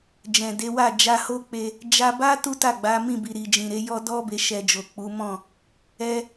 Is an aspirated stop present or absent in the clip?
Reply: absent